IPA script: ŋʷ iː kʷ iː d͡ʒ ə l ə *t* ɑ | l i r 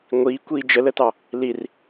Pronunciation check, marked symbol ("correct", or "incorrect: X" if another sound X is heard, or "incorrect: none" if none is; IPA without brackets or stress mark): correct